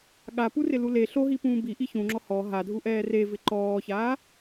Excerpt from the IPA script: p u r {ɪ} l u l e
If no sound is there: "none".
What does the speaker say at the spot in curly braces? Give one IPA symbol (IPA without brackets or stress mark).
ɪ